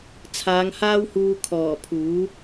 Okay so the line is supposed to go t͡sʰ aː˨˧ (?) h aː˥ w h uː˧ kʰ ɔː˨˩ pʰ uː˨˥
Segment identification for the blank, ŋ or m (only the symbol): ŋ